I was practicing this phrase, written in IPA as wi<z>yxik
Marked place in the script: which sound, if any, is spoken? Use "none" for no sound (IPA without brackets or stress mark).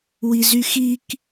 z